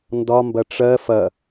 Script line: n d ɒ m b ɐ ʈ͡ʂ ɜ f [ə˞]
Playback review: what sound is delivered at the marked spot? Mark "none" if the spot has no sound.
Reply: ɐ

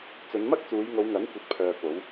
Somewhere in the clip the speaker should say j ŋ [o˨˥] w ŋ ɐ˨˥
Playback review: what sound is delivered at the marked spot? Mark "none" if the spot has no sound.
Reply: o˨˧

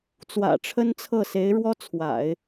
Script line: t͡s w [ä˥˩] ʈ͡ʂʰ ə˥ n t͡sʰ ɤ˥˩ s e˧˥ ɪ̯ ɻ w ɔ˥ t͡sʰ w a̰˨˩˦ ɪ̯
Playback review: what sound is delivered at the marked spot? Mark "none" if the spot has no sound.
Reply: ä̰˨˩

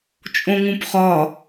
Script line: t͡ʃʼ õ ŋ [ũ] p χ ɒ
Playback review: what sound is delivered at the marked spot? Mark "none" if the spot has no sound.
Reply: ũ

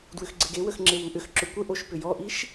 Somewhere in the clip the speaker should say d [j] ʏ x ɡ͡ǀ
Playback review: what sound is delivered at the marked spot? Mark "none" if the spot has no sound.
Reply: w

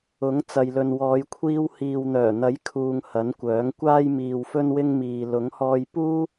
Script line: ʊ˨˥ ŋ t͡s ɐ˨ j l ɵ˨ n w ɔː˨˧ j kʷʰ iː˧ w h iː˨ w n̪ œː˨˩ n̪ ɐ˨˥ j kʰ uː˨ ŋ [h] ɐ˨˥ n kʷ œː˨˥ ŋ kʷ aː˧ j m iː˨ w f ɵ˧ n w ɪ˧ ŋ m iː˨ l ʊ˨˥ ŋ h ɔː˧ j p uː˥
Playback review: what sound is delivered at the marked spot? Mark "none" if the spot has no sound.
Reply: h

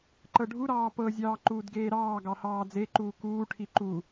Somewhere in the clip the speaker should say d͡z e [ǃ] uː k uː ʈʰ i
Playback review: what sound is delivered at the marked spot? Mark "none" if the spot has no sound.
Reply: ǃ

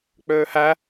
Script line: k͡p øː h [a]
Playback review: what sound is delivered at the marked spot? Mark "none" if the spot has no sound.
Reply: æ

